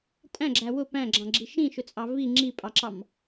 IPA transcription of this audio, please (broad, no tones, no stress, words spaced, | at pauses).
tʼæ̃ɡ͡ǁæ wʊ pæ̃ɡ͡ǁɑ̃ɡ͡ǁi ʃĩʃʊt͡sʼɑ vi ŋ͡ǁipʼɑǁɑm